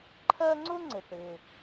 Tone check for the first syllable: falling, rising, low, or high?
high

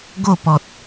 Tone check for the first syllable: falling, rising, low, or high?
falling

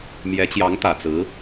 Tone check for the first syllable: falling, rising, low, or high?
rising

